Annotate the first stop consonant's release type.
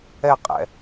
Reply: ejective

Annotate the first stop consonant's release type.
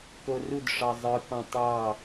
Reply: plain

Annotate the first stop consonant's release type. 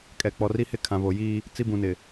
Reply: ejective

